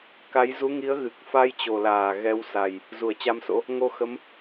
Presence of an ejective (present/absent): absent